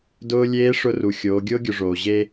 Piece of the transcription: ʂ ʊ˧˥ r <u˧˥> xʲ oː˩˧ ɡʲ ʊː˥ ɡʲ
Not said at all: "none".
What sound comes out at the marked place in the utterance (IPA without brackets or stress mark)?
u˩